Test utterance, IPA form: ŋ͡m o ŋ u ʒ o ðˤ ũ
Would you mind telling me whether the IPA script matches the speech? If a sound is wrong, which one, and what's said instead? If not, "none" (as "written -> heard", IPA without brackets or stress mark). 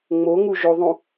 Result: none